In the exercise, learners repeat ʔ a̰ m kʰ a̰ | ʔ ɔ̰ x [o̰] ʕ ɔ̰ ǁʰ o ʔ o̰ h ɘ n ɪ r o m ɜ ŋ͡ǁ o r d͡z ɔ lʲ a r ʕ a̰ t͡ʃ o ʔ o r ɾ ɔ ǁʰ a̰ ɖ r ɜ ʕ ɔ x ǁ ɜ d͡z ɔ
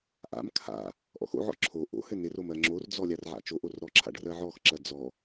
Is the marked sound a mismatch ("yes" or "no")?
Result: no